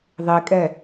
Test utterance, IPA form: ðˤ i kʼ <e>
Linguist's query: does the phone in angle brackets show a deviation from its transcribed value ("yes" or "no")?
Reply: yes